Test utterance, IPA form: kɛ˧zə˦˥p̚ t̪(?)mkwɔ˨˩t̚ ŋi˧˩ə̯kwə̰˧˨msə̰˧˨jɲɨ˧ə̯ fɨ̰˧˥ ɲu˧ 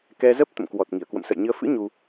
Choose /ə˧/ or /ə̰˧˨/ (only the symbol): ə̰˧˨